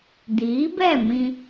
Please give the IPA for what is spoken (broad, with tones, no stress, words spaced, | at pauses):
diː˨˦bɛ˦˨mĩ˧